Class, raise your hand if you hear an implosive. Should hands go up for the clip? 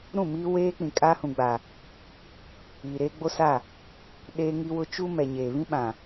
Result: yes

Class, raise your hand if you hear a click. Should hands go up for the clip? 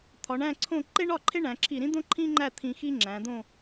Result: yes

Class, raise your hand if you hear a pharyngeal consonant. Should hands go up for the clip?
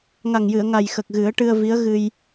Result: no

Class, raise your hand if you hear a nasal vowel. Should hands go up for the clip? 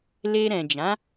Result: yes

